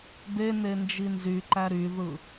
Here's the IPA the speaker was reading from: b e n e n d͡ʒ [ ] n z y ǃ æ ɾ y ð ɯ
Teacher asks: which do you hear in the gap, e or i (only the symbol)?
i